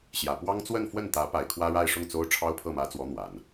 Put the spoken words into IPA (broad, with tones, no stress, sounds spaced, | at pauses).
ɕ j ä˨˩ p w ɑ˥ ŋ t͡s w ə˥˧ n f w ə˥˩ n t̪ ä˧˥ p a˨˩ ɪ̯ kʰ w ä˥ ɻ a˥˧ ɪ̯ ʂ ʊ˥˩ ŋ t͡s o˥ ʊ̯ ʈ͡ʂʰ ɑ˥ ʊ̯ pʰ ɤ˥˩ m ä˧˥ t͡s w ɔ˧˥ n̪ w a˨˩˦ n